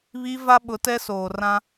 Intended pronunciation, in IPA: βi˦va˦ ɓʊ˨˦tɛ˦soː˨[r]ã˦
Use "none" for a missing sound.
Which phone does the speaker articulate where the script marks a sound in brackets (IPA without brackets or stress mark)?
r